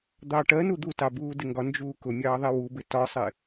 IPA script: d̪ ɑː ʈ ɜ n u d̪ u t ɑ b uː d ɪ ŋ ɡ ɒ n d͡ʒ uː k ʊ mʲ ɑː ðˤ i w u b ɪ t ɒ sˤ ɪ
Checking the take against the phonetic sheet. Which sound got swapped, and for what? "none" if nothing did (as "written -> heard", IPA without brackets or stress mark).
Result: none